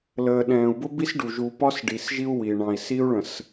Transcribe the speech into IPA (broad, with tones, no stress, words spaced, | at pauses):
ləː˨ɗɛ̃ː˨u̯bʊ˦bi˦s ɖu˨ʒu˨pɒ˦s ɖi˨sʒi˦u̯ wi˨ ɳɑ̃˨i̯si˦u̯ɭə̃˨s